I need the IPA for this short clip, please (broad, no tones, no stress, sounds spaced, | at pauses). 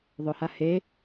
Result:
ðˤ ʊ h a h e